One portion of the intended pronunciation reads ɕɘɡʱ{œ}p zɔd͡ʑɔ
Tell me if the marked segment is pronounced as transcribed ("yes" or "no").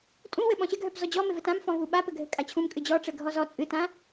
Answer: yes